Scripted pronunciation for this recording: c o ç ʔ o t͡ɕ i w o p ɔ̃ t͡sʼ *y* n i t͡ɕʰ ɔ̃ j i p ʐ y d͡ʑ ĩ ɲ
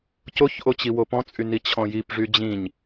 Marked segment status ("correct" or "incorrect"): correct